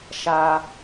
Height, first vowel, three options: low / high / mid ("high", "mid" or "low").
low